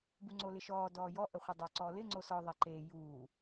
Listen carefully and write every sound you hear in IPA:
b u ŋ͡ǀ o l ɪ ʃ ɔː d ɔː j ɔ ʔ ə χʷ e dˤ o ǀ ɔː l ɪ ŋ͡ǀ o s ɔ ðˤ ɛ ǃ eː j uː

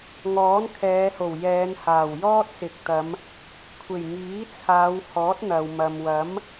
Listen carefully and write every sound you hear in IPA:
ŋ ɔː˨˥ n kʰ ɛː˨˧ h o˨˩ w j ɛː˨˧ n h aː˨˩ w j ɔː˥ t̚ s ɪ˨ k̚ t̪ ɐ˨˧ m | kʷʰ e˨˩ j ŋ iː˨˥ t͡sʰ aː˨˧ w h ɔː˨˥ t̚ n̪ ɐ˨ w m ɐ˨ m w ɐ˨˥ m

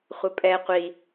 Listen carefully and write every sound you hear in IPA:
χʷ ə pʼ ɛ qʷ i

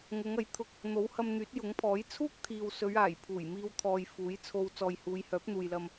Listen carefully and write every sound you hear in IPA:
ŋ ʊ˨˧ ŋ ɐ˨˥ j t̪ʰ ʊ˧ k̚ | n̪ o˨˥ w h ɐ˧ m n̪ yː˨˥ t̚ j ʊ˨˥ ŋ pʰ ɔː˨˥ j t͡sʰ uː˥ k̚ t̪ʰ iː˨ w s ɵ˨˧ ɥ aː˨˩ j pʰ uː˨˩ j m iː˧ w t̪ʰ ɔː˨ j f uː˨˥ j t͡sʰ o˧ w t͡s ɔː˨ j h uː˨˧ j h œː˨˥ p̚ n̪ uː˨ j l ɐ˧ m

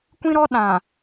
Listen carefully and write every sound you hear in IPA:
kʷ ĩ˦ ɾ ɔ˦ ɗ ã˨

